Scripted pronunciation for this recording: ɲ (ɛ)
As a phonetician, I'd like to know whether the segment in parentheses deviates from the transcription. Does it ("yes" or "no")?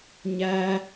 yes